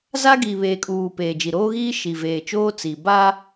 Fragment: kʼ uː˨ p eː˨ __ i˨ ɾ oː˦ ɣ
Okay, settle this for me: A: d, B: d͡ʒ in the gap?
B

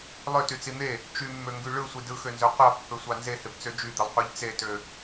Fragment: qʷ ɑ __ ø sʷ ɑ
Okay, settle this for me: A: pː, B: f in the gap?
A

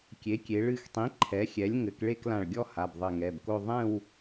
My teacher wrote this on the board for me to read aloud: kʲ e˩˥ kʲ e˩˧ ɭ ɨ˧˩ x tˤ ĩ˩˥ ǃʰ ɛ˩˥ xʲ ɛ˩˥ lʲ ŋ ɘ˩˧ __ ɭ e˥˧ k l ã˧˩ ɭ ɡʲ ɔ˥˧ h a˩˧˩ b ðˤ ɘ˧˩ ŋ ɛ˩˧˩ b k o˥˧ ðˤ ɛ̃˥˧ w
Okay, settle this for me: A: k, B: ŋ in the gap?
A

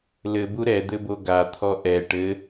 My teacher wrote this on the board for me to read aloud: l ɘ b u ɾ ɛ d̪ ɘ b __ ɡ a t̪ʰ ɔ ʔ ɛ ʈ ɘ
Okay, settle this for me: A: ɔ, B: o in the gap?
B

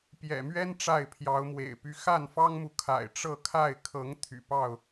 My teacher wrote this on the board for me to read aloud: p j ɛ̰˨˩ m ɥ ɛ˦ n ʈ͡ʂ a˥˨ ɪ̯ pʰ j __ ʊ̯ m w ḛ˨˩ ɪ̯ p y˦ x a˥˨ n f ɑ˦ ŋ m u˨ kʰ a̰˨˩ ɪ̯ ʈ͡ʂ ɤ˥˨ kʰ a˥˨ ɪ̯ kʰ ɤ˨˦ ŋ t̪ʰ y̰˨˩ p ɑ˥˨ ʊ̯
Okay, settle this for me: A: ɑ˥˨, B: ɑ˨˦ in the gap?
B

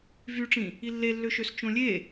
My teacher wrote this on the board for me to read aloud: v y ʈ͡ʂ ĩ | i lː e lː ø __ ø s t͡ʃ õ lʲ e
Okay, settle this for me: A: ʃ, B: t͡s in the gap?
A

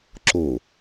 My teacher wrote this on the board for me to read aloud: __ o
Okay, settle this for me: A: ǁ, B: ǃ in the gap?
A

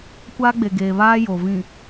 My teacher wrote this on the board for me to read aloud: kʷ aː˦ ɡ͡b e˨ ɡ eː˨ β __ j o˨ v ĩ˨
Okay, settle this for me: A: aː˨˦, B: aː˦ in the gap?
B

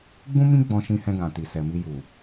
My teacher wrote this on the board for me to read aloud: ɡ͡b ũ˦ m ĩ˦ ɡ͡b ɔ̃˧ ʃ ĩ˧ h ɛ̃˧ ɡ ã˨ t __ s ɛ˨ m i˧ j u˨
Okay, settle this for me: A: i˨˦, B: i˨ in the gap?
B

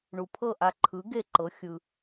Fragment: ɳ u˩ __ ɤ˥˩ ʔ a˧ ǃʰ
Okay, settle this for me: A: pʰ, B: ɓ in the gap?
A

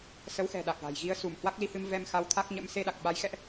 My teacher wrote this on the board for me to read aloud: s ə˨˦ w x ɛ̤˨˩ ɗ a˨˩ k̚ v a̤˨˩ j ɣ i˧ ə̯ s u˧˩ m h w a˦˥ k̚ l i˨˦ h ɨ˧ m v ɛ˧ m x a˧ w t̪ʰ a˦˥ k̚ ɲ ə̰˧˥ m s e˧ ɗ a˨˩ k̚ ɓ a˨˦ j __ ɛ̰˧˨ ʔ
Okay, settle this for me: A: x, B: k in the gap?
A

